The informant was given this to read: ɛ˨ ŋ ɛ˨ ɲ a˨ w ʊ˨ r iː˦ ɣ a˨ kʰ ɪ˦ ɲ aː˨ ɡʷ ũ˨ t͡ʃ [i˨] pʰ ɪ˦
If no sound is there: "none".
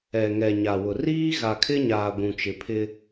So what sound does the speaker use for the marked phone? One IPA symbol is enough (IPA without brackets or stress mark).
ɪ˨